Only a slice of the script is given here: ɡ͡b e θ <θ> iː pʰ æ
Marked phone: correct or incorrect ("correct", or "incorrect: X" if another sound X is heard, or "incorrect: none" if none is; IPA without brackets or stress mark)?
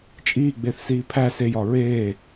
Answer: incorrect: s